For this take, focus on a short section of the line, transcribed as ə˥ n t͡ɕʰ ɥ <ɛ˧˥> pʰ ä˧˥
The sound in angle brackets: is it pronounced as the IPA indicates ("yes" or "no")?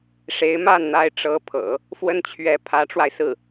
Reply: yes